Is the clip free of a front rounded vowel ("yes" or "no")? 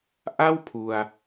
yes